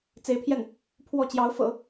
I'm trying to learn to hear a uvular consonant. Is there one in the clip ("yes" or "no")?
no